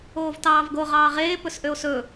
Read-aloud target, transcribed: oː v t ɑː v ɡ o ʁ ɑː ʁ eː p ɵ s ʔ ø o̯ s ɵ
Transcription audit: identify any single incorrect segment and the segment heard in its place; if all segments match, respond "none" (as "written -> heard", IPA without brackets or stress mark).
none